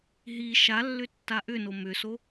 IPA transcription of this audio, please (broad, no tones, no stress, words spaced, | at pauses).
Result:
ɦi ʃalːʏ tːaʔʏno mʏso